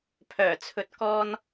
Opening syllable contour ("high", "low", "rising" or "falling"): low